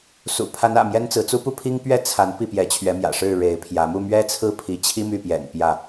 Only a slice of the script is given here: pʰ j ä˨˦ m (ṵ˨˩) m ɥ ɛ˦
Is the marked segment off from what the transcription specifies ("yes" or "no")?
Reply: yes